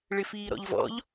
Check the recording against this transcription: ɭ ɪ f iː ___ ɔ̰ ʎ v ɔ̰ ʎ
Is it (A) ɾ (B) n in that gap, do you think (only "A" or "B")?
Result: A